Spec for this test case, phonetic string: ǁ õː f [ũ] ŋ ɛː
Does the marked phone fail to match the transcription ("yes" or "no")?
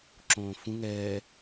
no